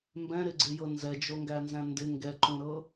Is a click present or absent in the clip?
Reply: present